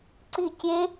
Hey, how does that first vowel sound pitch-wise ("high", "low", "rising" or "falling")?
falling